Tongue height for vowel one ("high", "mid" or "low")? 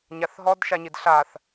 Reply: low